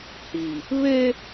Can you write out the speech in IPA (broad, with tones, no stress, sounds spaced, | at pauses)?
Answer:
h i˨ | β e˦